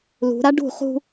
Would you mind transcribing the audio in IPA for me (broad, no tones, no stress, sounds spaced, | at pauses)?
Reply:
l ṳ ɾ a ɖ ṳ χ ṳ